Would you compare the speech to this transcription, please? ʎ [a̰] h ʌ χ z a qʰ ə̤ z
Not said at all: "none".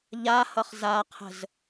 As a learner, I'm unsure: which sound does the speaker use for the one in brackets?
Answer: a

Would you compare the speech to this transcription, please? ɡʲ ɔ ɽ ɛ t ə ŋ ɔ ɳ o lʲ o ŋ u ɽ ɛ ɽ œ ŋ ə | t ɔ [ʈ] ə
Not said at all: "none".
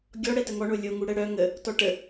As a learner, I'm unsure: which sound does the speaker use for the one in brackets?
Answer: ʈ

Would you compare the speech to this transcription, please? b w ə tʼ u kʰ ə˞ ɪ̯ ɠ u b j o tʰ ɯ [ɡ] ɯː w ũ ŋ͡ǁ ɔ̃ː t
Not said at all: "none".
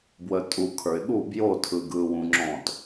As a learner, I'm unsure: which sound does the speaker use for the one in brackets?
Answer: ɡ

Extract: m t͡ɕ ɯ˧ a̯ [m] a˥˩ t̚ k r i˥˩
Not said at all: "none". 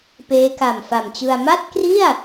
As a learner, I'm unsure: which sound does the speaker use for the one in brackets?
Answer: m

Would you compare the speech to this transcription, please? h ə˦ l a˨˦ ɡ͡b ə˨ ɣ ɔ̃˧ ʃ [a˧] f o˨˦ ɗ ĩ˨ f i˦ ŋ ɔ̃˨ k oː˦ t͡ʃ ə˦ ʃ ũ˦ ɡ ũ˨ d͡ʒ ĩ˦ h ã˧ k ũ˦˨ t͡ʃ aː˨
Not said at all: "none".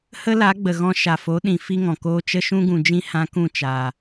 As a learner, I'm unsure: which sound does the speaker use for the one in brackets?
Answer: a˨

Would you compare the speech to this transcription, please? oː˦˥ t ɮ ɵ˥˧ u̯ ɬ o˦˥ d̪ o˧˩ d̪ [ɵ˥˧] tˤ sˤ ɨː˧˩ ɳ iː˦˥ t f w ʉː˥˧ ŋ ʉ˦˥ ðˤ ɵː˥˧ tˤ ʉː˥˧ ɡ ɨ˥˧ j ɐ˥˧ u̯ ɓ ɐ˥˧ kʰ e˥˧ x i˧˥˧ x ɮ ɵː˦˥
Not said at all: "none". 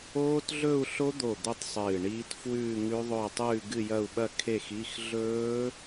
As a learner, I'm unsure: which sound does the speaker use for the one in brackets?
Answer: ɵ˥˧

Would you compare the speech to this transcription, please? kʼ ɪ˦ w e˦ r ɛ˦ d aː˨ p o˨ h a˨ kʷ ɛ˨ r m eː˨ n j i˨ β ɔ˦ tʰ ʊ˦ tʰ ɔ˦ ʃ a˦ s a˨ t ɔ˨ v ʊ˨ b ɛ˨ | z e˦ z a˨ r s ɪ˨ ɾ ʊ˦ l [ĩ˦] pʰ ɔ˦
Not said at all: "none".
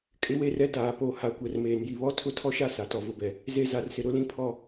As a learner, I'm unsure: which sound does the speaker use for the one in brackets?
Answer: ĩ˦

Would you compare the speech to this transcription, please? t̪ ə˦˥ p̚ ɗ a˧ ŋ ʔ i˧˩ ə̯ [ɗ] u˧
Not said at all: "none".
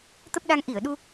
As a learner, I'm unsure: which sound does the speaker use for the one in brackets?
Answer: ɗ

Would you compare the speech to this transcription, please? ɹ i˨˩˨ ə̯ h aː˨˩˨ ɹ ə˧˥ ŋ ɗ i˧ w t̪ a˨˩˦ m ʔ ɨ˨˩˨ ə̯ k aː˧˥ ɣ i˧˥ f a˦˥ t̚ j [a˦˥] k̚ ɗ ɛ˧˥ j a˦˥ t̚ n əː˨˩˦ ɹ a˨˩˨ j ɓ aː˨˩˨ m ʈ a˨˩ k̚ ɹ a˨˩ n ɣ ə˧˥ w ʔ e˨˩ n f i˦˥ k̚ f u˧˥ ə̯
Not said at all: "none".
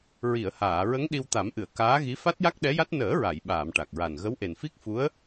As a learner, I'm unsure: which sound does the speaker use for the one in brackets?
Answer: a˦˥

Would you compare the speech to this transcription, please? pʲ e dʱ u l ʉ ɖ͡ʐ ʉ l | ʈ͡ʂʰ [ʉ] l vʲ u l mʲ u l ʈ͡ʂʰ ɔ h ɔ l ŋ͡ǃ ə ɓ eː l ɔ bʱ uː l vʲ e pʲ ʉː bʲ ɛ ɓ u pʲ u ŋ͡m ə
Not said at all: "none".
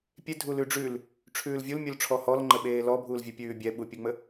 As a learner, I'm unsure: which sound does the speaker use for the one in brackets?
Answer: ʉː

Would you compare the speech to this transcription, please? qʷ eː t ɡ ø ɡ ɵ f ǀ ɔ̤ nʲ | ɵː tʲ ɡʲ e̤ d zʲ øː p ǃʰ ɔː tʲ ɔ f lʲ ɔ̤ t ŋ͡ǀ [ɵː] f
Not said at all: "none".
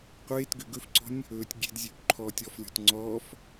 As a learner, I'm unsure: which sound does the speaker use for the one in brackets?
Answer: ɔː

